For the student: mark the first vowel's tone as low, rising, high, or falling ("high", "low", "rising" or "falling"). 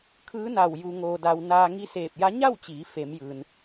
rising